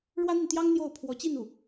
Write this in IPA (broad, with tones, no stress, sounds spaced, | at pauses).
ɻ w ä˥ n̪ i˨ n t̪ j ɑ˥ ŋ n̪ j o˥˩ ʊ̯ pʰ w ɔ˧˥ t͡ɕ i˥˧ n u˥˩